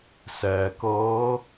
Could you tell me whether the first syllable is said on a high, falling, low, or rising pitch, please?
low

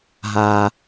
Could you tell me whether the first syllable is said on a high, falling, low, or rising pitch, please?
low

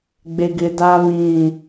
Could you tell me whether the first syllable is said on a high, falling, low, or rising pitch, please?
low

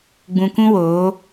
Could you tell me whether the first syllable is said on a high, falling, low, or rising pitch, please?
low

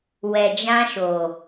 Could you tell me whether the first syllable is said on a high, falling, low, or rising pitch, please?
low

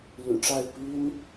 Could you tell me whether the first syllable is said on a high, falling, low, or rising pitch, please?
low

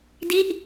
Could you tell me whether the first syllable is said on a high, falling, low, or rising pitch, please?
falling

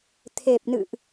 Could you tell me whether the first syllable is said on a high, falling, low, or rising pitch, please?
low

